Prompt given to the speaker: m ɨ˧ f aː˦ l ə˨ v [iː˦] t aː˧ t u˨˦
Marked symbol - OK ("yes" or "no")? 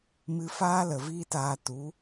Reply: yes